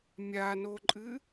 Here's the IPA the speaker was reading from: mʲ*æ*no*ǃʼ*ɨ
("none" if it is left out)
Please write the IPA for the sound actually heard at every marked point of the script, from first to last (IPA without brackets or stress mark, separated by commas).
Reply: a, ǃʼ